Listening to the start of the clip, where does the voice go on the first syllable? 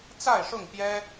falling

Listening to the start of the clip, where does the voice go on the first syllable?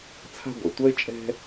high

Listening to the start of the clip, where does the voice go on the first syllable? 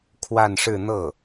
falling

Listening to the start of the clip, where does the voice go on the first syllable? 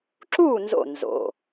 falling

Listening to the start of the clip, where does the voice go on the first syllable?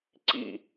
falling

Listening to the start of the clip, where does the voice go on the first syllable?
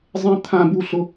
high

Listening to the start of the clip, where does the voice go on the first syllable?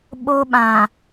high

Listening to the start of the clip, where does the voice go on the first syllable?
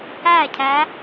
falling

